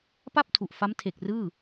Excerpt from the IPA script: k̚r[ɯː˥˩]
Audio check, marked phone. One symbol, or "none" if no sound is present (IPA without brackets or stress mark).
ɯː˥˩